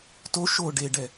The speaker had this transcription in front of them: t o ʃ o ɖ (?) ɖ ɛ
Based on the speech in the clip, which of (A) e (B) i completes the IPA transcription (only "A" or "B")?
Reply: A